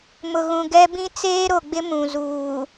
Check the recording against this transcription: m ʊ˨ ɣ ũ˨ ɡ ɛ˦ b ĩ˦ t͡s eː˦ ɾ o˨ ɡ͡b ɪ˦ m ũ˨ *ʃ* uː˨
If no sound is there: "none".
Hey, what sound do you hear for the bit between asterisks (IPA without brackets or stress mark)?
z